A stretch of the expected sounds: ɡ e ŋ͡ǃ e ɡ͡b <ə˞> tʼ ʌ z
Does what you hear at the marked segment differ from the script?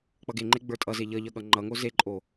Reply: no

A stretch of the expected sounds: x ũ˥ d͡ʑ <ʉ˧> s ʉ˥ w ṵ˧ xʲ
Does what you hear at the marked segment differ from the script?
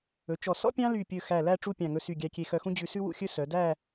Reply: no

